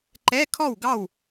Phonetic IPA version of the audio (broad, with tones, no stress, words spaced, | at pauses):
ǃɛ˧˥˧ kʰɔ˥˨wɡɑ˥˨w